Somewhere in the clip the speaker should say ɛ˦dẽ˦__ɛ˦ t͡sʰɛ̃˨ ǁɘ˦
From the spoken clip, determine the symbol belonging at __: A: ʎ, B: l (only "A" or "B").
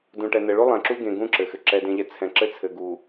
A